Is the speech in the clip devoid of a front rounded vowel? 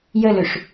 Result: no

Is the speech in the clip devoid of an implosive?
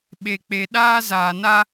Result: no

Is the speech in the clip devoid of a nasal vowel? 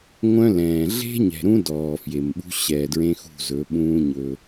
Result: no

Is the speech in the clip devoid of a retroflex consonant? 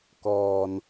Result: yes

